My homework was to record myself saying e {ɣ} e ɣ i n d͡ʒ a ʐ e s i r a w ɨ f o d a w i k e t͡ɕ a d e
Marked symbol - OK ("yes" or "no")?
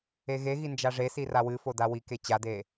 yes